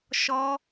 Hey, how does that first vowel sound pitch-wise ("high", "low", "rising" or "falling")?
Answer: high